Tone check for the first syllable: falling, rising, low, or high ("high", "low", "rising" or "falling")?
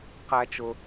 high